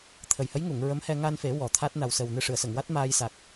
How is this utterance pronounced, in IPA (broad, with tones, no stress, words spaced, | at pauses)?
t̪ʰə˨˩jhə˧˥jŋu˨˩˨ŋ ɹə˧˥mhɛ˧ ŋa˧nfe˨˩˦ wɔ˨˩˦t̪ʰa˦˥t̚ na˨˩wsə˨˩wnɨ˧ ʂɨ˨˩˨ə̯sə˨˩˨ŋwa˦˥t̚ maː˧jsa˨˩k̚